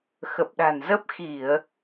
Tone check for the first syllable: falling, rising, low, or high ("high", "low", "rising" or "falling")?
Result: low